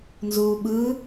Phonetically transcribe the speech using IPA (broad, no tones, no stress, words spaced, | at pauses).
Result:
nzuːɓɯ